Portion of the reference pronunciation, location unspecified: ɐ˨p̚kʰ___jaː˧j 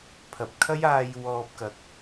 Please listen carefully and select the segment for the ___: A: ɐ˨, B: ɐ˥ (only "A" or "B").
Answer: B